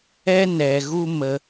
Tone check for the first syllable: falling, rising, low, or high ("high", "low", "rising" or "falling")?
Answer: high